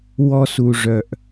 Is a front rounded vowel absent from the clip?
no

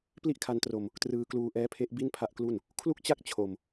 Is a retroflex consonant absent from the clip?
yes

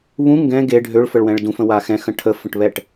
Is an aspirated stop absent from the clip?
no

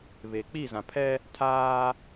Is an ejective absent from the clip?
yes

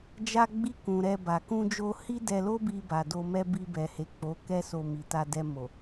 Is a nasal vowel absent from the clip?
no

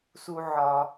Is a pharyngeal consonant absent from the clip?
no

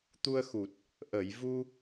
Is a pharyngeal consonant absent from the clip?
yes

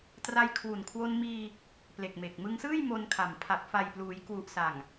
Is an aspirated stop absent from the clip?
no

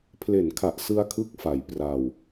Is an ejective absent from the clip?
yes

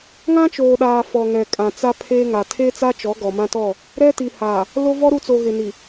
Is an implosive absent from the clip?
no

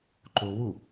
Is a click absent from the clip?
no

